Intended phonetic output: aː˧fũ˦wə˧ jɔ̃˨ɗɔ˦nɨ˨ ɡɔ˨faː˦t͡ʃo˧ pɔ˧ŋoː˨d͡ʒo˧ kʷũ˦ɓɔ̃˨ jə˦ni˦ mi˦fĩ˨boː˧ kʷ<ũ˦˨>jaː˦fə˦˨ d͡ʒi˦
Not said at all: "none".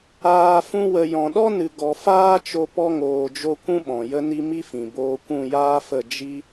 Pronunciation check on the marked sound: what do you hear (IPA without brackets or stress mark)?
ũ˦˨